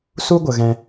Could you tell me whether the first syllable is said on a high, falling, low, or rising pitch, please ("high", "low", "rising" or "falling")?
high